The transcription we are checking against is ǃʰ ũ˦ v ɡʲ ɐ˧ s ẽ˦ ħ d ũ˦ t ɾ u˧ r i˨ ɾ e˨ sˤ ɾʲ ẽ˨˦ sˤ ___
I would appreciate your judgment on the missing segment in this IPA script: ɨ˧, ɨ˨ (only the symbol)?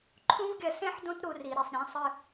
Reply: ɨ˧